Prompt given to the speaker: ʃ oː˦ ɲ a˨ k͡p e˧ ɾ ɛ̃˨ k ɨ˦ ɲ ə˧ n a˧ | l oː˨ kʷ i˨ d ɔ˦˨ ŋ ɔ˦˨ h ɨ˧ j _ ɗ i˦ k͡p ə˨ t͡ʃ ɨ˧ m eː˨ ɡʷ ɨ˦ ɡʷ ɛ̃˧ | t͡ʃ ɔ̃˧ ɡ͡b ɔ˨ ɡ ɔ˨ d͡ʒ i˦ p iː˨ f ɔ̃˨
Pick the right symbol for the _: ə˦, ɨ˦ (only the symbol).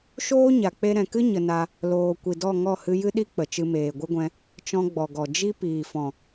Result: ɨ˦